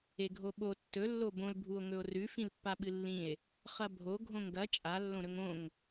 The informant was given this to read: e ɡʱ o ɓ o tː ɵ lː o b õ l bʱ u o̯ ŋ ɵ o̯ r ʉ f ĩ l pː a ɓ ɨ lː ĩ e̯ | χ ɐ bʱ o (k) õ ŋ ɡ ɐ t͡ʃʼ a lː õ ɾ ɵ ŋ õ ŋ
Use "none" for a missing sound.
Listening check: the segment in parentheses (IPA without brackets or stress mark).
ɡʱ